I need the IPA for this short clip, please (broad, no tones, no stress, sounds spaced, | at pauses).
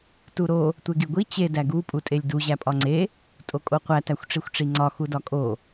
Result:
t u ɾ o | tʷ e ɡ i ɡʷ i t͡ɕ e d æ ɡ u pʼ u tʼ e lʲ d u ʑ æ pʼ ɒ ŋ͡ǀ e | tʼ o kʼ o qʷ æ t æ xʷ ʈ͡ʂ i xʷ ʈ͡ʂ i ŋ͡ǀ ɒ x u d ɒ kʼ o